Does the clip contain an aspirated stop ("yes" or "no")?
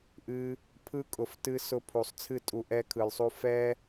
yes